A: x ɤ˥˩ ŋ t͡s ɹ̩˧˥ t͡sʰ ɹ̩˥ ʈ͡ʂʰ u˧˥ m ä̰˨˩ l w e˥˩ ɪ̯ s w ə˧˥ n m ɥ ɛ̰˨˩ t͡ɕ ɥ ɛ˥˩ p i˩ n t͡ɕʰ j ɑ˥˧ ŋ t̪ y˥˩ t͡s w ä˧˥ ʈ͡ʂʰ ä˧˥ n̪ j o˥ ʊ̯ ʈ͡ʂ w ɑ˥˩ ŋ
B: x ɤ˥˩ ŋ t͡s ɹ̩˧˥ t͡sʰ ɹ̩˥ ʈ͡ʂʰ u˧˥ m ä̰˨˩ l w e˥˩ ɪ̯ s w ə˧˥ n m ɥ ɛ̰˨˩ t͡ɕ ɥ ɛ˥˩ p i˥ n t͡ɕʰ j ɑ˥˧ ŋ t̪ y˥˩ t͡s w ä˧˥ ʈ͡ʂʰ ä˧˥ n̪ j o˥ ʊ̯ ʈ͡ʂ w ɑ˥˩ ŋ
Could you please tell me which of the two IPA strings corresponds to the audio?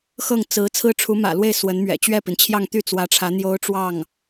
A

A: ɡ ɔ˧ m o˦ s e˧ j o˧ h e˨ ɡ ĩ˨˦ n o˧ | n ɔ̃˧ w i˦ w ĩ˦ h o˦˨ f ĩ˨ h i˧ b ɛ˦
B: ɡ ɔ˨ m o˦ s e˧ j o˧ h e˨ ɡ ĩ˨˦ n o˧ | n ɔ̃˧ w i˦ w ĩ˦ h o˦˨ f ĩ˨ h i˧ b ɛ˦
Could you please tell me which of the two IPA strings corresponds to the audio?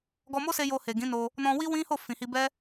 A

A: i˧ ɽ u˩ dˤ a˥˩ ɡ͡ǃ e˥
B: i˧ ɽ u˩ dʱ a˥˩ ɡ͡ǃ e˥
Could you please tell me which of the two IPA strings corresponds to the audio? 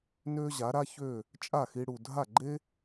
B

